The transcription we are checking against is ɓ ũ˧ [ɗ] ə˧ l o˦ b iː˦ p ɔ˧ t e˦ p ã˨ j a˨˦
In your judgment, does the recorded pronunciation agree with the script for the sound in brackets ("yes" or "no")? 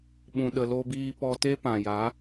yes